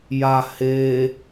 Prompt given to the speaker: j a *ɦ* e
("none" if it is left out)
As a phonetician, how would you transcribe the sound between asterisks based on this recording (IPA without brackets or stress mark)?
h